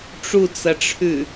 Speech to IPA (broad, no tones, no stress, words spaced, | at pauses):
ʈ͡ʂut͡sɐʈ͡ʂʰʉ